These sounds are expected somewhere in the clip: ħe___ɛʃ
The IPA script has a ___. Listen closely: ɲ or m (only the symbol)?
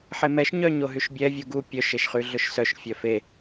m